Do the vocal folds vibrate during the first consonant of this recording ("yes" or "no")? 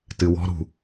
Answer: no